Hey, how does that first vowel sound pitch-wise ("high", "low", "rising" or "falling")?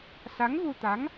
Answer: rising